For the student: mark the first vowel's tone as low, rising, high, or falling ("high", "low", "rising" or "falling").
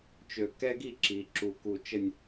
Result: low